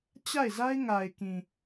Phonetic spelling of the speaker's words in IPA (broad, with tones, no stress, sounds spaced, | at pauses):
t͡ɕ a˦˨ ɪ̯ z a˦ ɪ̯ ŋ a˨ ɪ̯ k ĩ˨